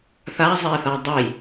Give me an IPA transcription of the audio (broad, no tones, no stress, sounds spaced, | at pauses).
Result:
θ a zˤ ɛ θ a dˤ ʌ j